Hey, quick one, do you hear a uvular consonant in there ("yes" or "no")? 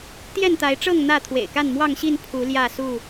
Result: no